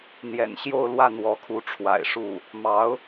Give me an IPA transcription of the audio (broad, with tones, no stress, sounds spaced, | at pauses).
n̪ j ɛ̰˨˩ n ɕ j o˥˧ ʊ̯ l w ä˥˩ n̪ w ɔ˧˥ kʰ u˧˥ ʈ͡ʂʰ w a̰˨˩ ɪ̯ ʂ u˥˩ | m ɑ˧˥ ʊ̯